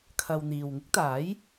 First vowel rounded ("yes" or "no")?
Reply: no